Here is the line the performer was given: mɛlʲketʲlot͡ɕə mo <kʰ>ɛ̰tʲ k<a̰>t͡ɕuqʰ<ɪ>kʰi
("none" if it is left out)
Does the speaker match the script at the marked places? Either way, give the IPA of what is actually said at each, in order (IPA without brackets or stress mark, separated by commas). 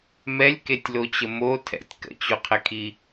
tʰ, ə̰, ɪ